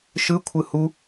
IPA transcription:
ʃ ɯ kʷʰ ɯ h u

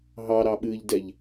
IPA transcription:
ɦ ɑ ɾ ɑ ɓ ɨː ʎ d ɛ ʎ

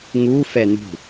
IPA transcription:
ŋ u f ɛ n ṳ

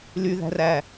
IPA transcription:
l y ð æ̤ r æ

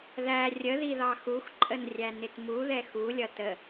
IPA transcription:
ð æ rʲ ə ð i ð ɑ x u x ǃʼ ə n rʲ æ n ɪ t m u ð ɛ x u lʲ ʌ t ə

